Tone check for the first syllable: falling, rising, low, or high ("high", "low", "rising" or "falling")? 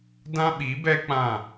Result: high